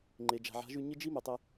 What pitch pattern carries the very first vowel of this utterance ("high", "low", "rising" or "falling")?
low